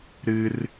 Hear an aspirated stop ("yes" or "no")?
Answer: no